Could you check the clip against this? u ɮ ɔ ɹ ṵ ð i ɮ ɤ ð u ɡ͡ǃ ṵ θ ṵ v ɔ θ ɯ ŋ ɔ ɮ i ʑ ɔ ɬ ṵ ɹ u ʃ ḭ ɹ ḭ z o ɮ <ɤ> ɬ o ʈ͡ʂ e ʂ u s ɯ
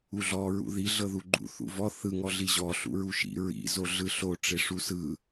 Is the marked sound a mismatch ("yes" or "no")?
yes